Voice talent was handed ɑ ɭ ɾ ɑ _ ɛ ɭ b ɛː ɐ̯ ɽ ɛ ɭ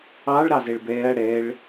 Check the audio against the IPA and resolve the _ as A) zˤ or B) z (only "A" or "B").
B